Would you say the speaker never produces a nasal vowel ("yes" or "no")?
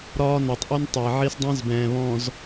no